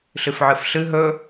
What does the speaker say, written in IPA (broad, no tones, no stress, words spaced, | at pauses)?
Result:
ɬɨfʕɨfɬɨ ɦɵ